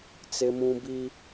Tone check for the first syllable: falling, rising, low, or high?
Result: high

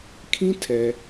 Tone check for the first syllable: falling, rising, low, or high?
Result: high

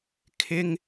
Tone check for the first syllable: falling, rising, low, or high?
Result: high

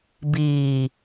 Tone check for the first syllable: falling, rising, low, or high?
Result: low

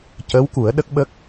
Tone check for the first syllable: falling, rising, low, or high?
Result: rising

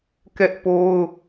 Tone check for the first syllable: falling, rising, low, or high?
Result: high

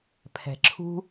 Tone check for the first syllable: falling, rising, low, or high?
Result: low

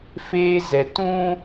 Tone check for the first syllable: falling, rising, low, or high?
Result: high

